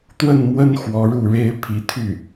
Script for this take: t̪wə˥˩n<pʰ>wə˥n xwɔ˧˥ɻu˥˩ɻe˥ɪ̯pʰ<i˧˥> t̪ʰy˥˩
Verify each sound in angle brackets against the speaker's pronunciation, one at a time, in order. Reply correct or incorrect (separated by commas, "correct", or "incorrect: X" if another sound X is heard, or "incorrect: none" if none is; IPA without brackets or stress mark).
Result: incorrect: m, correct